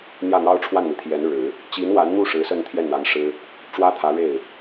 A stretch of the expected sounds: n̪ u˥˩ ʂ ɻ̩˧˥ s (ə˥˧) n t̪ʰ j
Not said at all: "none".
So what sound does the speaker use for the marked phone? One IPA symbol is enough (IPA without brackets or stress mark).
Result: ə˥˧